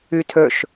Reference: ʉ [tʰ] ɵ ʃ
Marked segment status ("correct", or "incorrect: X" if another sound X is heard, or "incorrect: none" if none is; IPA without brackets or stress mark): correct